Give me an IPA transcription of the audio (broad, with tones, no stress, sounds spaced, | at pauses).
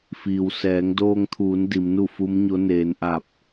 f iː˩ w s ɛː˩˧ ŋ d oː˧ ŋ t̪ʰ uː˩˧ n d i˩˧ m n u˥˨ f u˧˥ m ɲ o˧˥ n eː˩˧ n ʔ a˧˩ p̚